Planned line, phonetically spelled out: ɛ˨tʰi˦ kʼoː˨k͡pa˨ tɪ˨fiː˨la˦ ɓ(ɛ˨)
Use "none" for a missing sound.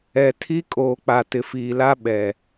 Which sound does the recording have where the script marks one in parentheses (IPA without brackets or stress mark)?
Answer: ɛ˨